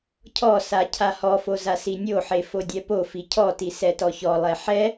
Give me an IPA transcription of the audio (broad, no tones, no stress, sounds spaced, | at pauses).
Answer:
cʰ ɔ s a cʰ a h ɔ f o z a s i nʲ o ħ e f o dʲ ɛ p o f i cʰ ɔ t i s ɛ t ɔ ç ɔ lˠ ɛ ħ ɛ